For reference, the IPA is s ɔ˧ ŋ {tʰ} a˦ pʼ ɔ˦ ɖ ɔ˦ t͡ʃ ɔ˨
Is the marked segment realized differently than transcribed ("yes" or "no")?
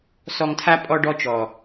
no